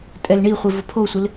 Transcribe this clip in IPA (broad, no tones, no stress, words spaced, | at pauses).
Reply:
tʼɛlɳiχʷɪ vʊpʰosʷɪl